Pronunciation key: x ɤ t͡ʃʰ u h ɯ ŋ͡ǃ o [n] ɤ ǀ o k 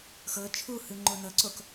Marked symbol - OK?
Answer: yes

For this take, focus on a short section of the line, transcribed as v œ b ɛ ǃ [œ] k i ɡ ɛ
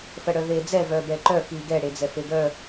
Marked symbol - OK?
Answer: yes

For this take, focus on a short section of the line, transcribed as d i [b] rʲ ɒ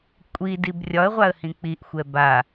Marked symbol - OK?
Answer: yes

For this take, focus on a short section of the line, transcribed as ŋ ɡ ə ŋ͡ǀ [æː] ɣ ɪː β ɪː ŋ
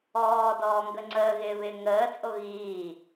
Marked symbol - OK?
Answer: no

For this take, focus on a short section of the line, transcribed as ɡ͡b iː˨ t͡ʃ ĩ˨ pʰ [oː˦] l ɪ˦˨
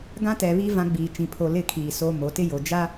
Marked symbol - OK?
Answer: no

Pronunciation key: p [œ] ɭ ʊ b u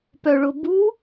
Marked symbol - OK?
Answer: yes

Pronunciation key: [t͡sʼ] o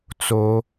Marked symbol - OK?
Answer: no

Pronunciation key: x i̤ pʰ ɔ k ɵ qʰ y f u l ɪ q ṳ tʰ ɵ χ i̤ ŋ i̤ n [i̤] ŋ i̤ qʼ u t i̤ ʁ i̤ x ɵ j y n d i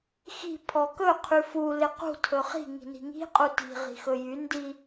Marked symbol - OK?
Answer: yes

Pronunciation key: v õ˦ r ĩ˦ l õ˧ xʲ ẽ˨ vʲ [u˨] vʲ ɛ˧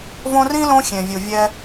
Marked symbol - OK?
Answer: yes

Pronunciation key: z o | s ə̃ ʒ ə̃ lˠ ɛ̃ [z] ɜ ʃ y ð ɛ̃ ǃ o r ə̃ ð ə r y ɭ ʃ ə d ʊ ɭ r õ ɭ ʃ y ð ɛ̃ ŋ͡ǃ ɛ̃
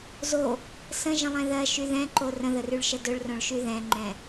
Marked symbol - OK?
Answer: no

